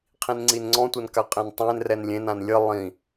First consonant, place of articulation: uvular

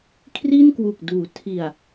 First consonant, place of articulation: velar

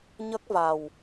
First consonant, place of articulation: palatal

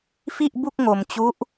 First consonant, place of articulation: labial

